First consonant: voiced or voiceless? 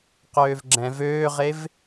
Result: voiceless